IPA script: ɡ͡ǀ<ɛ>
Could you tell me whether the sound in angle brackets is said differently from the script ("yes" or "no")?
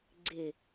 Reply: yes